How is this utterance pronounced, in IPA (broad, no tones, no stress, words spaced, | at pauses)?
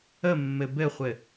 əmːɘ bɘχʷɘ